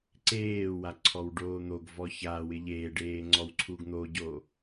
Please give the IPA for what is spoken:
ǀeːwa ǀʰɔwɖoːn̪oɡvɔ çawɪ ʎeːɖeː ŋ͡ǀɔwǀʰuɡn̪oɟo

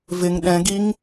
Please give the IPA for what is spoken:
vɪŋ ɗɛ̃ɡiŋ

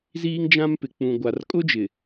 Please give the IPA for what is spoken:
ziː˦ŋd͡ʒã˦mpɪ˨k͡pũ˨ ɡʷa˨rkʼʊ˦d͡ʒɪ˨

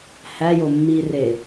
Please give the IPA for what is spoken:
hæjo mːire

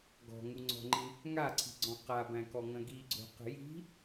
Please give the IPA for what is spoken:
ɡɔ̤ŋuŋ͡ǀɔ̤ŋ͡ǃĩ | ŋaǀʰi̤ɡ͡ǀɔ̃ qabæ̃kɔŋɐ̃ ɡiɡ͡ǀo̤qə̤ ji̤

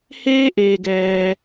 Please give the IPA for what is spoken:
heː˥ʔeː˧ɡɛː˧

